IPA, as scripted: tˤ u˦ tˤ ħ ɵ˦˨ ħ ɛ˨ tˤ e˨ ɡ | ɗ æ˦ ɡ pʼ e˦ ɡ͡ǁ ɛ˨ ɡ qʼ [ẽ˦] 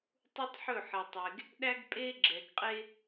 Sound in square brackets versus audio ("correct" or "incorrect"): incorrect